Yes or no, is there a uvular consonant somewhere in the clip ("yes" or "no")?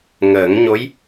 no